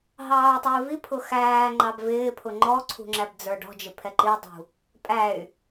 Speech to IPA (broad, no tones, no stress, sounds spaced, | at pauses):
ɦ ɑː u̯ tˤ u i̯ v i pʰ ʊ x æː ŋ͡ǃ ɑ b v ɪː pʰ ʊ ŋ͡ǃ ɔ ǀʰ ṳ ŋ͡ǁ æ b d͡z ə˞ ɖ ɔ̤ d͡ʒ ɪ pʰ ɛ ǃ i dˤ ṳ | pʼ æ y̯